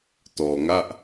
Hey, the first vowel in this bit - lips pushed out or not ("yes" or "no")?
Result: yes